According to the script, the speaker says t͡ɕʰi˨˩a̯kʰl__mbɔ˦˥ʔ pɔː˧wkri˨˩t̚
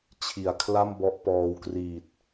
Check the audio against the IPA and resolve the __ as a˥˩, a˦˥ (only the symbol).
a˥˩